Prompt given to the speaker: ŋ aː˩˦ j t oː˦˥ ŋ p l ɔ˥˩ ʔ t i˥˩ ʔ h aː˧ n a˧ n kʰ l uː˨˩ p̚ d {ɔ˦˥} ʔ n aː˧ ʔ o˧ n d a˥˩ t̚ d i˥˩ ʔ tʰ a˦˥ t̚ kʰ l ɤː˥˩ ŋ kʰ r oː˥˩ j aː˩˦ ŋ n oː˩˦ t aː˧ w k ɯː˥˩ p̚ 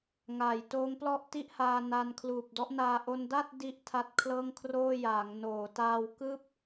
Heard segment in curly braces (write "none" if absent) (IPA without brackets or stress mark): ɔ˦˥